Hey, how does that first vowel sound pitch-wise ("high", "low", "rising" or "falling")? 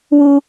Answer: high